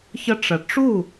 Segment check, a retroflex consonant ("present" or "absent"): present